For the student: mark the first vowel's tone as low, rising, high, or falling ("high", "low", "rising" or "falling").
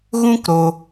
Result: high